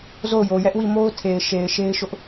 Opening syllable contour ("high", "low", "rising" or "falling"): falling